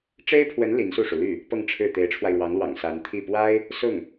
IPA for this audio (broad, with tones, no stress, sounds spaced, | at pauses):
ʈ͡ʂ e˥ ɪ̯ pʰ w ə˧˥ n l i˧˥ n s u˥˩ ʂ u˩ l y˥˩ | p ɤ˥˧ ŋ ʈ͡ʂʰ ɻ̩˥˩ t̪ e˧˥ ɪ̯ ʈ͡ʂʰ w a˧ ɪ̯ ɻ w ɑ˧˥ ŋ l w ɑ̰˨˩ ŋ s a˧˥ n t̪ʰ i˥˩ p w a˥ ɪ̯ | s ʊ˥˩ ŋ